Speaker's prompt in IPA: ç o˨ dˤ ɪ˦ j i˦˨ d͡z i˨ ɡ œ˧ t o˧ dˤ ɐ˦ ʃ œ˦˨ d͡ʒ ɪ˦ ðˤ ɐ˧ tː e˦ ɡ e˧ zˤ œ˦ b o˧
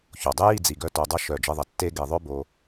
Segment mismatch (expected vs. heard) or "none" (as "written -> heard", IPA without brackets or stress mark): zˤ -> ðˤ